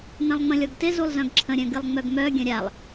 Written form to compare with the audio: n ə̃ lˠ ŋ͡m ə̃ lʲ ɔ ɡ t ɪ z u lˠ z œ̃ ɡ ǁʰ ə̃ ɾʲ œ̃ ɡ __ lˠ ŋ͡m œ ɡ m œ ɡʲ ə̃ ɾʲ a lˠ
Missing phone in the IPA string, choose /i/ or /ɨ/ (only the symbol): ɨ